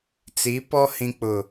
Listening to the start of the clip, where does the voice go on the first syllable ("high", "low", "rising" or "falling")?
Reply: rising